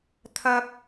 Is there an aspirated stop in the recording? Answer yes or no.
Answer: yes